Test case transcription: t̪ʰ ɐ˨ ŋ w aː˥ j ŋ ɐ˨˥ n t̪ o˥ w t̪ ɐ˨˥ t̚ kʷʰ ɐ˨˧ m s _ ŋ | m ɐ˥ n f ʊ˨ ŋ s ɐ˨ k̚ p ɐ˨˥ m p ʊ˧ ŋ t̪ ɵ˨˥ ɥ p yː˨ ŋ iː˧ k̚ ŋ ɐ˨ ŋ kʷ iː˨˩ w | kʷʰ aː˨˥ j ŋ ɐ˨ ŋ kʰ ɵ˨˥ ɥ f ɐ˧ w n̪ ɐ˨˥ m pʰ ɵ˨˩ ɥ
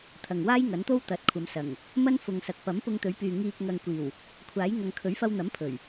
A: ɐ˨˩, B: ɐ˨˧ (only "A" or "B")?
A